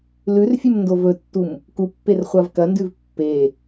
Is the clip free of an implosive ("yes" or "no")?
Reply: yes